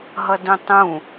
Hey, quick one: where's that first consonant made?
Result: throat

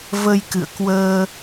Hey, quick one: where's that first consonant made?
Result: lips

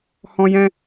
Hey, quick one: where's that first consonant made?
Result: throat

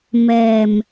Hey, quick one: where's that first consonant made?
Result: lips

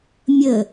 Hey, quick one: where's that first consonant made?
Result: lips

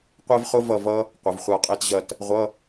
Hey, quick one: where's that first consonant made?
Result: uvula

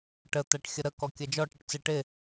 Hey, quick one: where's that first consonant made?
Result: retroflex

